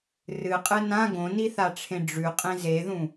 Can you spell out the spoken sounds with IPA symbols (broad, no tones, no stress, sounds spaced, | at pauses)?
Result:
r ɨ qʼ ɨ n ã ɡ õ n i θ a ʈ͡ʂʰ ẽ ɖ͡ʐ ʉ qʼ ẽ z e ð ũ